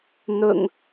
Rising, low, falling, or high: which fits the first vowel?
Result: low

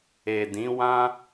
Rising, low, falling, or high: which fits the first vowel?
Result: low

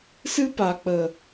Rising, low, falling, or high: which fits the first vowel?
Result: high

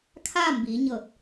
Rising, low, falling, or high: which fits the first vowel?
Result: falling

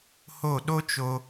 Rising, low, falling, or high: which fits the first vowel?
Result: falling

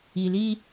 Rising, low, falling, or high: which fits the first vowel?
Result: low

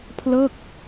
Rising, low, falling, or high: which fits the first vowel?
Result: falling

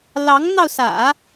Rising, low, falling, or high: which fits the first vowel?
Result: rising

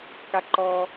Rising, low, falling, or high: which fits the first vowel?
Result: high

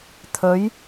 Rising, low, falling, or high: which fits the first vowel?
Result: rising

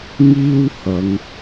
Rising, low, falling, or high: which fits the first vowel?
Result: high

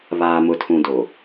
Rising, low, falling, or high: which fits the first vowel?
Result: low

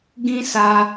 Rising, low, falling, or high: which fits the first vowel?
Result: high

